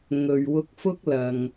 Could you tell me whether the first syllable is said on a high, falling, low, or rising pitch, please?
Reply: low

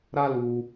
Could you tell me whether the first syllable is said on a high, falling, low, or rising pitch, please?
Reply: high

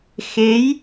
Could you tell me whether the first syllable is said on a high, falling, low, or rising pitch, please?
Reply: rising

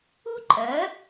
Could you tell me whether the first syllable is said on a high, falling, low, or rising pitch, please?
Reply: high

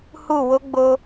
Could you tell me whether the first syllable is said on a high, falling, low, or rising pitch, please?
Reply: falling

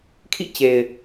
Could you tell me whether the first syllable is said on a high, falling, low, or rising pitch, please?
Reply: falling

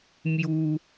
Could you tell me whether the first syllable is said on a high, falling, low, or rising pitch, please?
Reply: high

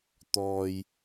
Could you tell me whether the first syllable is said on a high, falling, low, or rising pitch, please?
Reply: low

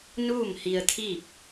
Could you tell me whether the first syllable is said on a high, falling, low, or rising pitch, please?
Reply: falling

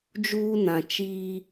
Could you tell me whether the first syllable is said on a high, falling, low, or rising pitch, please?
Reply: high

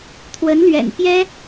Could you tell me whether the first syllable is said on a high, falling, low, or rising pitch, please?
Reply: rising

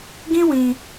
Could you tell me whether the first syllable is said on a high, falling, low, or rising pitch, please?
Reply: high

